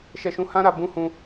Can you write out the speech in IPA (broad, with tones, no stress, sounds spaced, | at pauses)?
ʃ ɛ˦ ʃ ũ˦ h ã˦ ɾ a˧ b ũ˦ h ũ˦